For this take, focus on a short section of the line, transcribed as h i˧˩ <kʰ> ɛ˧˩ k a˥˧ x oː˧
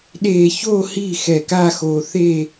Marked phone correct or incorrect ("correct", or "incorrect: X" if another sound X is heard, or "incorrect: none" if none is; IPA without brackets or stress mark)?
incorrect: x